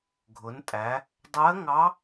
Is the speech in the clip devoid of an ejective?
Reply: no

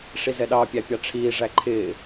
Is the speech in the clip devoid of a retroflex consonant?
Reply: no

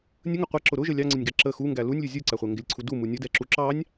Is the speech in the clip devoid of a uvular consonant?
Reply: no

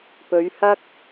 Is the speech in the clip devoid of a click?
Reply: yes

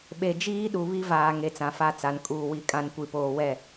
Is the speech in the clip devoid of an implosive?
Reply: no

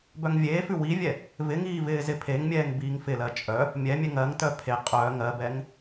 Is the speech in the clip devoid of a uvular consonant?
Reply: no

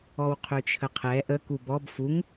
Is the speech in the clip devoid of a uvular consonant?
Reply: no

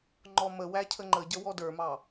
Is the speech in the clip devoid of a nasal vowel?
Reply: yes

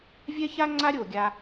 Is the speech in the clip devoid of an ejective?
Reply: yes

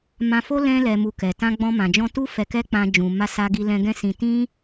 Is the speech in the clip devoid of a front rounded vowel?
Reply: yes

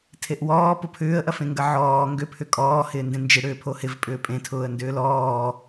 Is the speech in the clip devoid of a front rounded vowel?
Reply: no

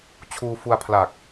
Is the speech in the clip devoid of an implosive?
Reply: yes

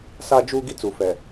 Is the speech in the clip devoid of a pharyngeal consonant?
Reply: yes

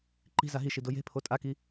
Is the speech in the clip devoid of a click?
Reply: no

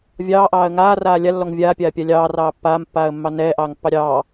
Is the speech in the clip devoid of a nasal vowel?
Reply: yes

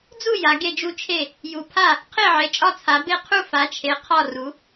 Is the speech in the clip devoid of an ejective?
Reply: no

